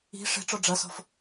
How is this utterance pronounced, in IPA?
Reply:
i̤ ʂ e̤ ʈ͡ʂ ɔ ɖ͡ʐ ɐ s ɔ̤ f

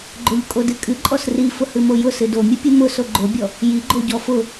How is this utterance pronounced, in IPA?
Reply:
ɡ͡ǃ o ʎ kʼ o d ɨ kʼ ɨ ǃʼ ɔ s r i f ʊ h ɨ m o j ʊ s ɨ d o mʲ ɨ pʲ ɨ m ʊ s o ɡ͡ǃ o bʲ ɔ | j i ɡ͡ǃ o ɟ ɔ f ʊ

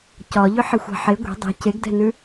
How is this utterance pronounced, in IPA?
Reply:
c ɒ ʎ ʏ ħ e xʷ a̤ ħ e ɡʷ e̤ dˤ ɛ̤ c e ɡ d ɛ̤ n ʉ

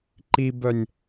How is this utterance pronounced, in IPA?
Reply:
ǃ i b œ nʲ

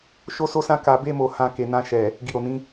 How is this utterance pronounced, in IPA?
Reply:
ʃ o˦ s o˦ s ã˦ k a˧ b e˦ m o˧ h ã˧ k e˨ n ã˧ ʃ ɛ˨ | ɡ i˨ ɾ o˨ n ĩ˨˦

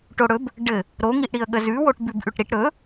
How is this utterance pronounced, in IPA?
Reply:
ʈ o ɽ ɵ b | ɖ ɘ | ɾ o ŋ i ʔ ɽ i ə̯ ɠ ə z ʉ w o ʈ b ʉ b ʔ ʉ ʈ ɾ i ʈ ɾ ɵ

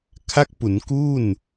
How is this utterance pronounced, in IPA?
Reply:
kʰ a˦˥ k̚ p u˩˦ n k u˥˩ n

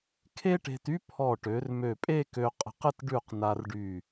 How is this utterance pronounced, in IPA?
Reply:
kʰ e˥ ʈ e̤˧ t y˥ pʰ ɔ˧˩ ʈ ø˩˧ r m ø˧˩ pʼ e˥˧ k ø˧ qʼ ə̤˧ q ə˥˧ t ɖ ʉ˧˩ q n a˧ r ɖ y˧˩

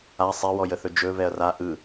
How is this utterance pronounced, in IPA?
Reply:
a sˤ e w ɔ j ə θ ɵ d͡ʒ ɵ v ɛ ɐ̯ r a ʔ ɯ

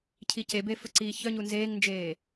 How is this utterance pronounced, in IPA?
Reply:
cʰ i c e b e f ɵ ǀ iː ç œ ɲ u n z eː ŋ n d͡ʒ eː

